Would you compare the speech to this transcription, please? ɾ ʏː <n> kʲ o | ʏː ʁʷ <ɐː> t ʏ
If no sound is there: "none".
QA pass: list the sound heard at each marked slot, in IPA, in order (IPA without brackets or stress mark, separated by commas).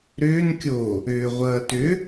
n, ɐː